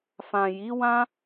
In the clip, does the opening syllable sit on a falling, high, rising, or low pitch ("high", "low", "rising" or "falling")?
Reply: low